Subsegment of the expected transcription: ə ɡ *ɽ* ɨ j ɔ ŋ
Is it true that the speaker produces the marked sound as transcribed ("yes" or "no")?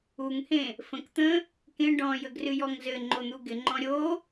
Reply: no